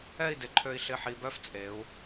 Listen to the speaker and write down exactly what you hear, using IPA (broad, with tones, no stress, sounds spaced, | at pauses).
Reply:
ɛ˥˧ i̯ d ɪ˩˧ ǃʰ ø˧ i̯ ɬ ɪ˧˩ ħ i˧ b œ˥ f t͡sʼ e˩˧ u̯